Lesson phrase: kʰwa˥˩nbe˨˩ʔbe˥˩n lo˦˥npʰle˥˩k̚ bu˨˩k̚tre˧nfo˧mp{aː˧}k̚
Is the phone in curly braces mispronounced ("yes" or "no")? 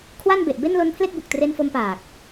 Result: yes